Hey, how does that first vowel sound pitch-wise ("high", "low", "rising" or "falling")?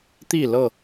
falling